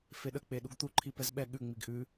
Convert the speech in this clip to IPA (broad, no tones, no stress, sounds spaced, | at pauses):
f e ɗ ə k͡p e ɗ u ɡ t̪ u ǃʰ i p ɛ z ɓ ɛ ɠ ʉ ŋ͡m i ɡ ʔ ʉ